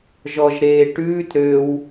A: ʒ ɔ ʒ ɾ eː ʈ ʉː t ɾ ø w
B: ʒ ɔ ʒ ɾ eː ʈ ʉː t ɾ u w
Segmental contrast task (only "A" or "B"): A